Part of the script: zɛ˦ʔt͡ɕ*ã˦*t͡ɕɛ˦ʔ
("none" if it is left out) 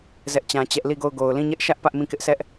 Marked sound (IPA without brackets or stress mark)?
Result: ã˦